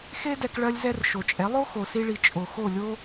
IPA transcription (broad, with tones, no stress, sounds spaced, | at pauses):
x e˥ d ɛ˧ k ɭ ɜ˧ lʲ z ɛ˧ r ʃ o˩ t͡ʃʼ ɛ˩˥ lˠ o˥ x o˩ s i˧ ɭ i˩ t͡ʃʼ o˩ x o˥˩ lʲ o˥